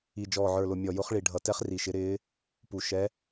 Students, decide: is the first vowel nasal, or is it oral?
oral